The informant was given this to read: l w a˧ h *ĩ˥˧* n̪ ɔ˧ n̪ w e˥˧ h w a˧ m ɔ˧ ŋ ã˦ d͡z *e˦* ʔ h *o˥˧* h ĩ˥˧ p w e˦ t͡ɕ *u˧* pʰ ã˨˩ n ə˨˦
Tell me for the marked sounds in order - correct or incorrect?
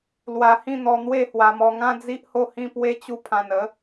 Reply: correct, incorrect: i˦, correct, correct

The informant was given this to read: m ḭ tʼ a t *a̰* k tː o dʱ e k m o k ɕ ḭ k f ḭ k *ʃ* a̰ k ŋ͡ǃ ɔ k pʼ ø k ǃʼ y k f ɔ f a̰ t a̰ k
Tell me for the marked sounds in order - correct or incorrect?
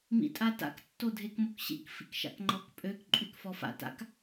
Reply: correct, correct

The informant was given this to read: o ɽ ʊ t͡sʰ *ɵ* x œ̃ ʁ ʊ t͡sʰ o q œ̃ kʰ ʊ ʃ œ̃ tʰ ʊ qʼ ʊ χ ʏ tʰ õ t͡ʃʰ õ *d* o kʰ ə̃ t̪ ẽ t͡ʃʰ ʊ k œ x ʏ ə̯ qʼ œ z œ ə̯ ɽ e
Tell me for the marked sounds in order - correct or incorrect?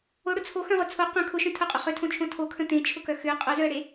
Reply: incorrect: o, incorrect: tʰ

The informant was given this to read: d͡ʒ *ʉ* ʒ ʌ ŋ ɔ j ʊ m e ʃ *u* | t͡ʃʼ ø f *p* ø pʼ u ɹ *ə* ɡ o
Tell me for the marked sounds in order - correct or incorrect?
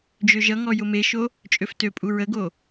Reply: incorrect: ø, incorrect: o, incorrect: t, correct

